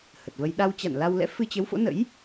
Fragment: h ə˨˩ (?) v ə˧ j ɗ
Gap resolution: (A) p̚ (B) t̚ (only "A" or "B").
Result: B